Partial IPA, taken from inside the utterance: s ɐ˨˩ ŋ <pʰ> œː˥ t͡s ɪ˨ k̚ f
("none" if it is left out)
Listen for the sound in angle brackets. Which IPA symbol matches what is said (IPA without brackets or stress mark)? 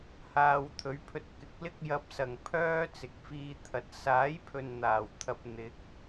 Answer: pʰ